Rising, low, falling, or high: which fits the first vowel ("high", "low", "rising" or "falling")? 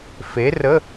rising